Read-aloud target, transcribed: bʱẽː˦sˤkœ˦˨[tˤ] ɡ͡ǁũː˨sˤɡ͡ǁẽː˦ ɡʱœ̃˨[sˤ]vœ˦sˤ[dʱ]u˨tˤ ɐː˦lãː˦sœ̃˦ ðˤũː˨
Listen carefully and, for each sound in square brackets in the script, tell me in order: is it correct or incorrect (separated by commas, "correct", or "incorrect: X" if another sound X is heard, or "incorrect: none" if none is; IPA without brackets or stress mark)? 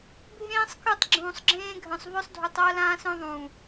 correct, correct, correct